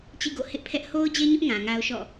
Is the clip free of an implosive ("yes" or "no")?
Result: yes